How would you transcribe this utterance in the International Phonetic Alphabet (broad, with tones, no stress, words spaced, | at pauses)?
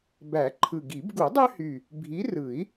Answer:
bæ˨˩˦ǃʰɯ˨˩ɡi˨˩˦b ɡu˨˩˦dˤø˦hy˨˩ | bʱi˨˦rɯ˨˩˦i̯